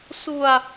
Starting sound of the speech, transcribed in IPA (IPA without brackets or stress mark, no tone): s